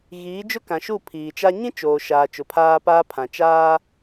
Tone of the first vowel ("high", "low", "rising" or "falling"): rising